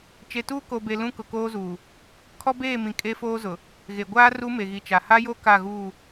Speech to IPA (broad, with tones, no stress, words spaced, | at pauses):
t͡ʃe˨tuː˦ko˨be˨ lũ˦kʊ˨koː˦zuː˨ | kʰɔ˦beː˦˨mĩ˨ kʼe˦foː˦zʊ˨ | ɣe˨ ɡʷaː˦ ru˦me˨ɣi˨t͡ʃa˨ ha˦jo˦ ka˦˨ɣuː˦˨